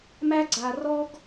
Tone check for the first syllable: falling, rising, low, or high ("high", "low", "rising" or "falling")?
high